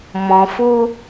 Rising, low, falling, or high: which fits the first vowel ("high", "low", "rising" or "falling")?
low